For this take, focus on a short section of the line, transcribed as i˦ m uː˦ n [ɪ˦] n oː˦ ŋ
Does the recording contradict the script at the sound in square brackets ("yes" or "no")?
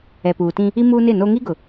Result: yes